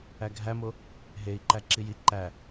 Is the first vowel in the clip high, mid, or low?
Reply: low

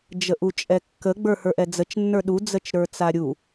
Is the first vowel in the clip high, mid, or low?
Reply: mid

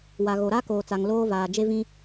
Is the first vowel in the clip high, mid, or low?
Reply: low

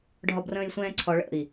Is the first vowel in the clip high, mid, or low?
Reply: low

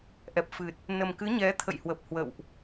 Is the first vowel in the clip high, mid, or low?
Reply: mid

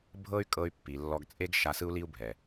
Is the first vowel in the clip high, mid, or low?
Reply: mid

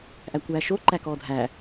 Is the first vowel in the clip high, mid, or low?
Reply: low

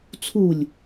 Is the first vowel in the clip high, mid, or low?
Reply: high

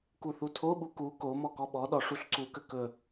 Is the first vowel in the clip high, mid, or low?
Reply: high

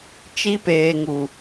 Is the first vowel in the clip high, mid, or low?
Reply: high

